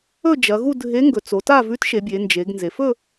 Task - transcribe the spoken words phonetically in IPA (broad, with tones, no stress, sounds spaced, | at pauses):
ɵ˥˧ d͡ʒ ɐ˩˧ ɣ u˥˧ dʱ e˧˥ ŋ ɡ ɵ˩˧ t͡s o˩˧ t a˥˧ v ʉ˧˥ t ʃ e˩˧ bʲ e˩˧ n d͡ʒ e˩˧ ɡ n z e˩˧ f ɵ˥˧